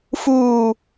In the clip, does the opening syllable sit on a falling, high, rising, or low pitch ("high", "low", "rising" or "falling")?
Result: low